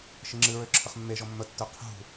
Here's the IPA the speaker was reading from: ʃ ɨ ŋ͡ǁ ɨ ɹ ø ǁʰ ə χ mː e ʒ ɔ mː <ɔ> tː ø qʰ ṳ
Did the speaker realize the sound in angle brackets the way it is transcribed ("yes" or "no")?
no